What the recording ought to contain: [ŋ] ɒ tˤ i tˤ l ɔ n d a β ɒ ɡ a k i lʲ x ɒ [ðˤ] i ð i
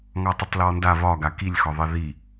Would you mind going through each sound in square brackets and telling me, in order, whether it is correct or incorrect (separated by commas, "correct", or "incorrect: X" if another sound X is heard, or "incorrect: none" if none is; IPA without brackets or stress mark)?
correct, correct